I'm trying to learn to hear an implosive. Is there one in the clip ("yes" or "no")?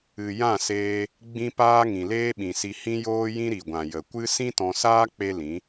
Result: yes